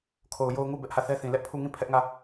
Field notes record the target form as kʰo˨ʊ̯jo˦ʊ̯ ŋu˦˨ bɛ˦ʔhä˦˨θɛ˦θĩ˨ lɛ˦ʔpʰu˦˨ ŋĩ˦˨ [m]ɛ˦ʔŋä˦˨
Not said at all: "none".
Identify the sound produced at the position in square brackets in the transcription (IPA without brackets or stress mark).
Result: pʰ